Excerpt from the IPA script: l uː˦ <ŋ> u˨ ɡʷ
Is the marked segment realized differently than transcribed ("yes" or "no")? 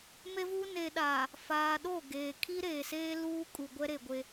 yes